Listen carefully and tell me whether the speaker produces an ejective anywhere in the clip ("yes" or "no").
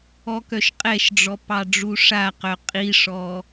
yes